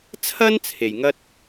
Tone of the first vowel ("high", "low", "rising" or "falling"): high